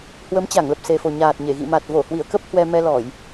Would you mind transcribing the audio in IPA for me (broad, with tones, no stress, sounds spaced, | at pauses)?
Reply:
h w ə˨˦ m t͡ɕ a˧˩ ŋ l ə˨˩ p̚ s e˨˩ f o˨˩ ɲ aː˨˩ t̚ ɲ e˧˩ ɣ ḭ˧˨ m a˨˩ t̚ v o˧˩ h w i˧˩ ə̯ k ə˦˥ p̚ h w ɛ˧ m ɛ˧ l ɔ˧˩˨ j